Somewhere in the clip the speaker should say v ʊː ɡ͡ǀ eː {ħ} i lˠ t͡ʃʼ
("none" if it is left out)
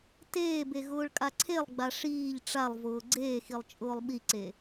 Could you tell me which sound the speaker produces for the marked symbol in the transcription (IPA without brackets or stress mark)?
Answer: x